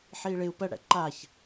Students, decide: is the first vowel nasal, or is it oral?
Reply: oral